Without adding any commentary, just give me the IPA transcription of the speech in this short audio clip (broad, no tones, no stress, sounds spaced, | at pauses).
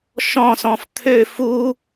ʃ ɔ̃ s ɔ̃ f t̪ʰ ø f u